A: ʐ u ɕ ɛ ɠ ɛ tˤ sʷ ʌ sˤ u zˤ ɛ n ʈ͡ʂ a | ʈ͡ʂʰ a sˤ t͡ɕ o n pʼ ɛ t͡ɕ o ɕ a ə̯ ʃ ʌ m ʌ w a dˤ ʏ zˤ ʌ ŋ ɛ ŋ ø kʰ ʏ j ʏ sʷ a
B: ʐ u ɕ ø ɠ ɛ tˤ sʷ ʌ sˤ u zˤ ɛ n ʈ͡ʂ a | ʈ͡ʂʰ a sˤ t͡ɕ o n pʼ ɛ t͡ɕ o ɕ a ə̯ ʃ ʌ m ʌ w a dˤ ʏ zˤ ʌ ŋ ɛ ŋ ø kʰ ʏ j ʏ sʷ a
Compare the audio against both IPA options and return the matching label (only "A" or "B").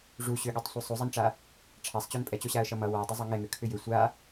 B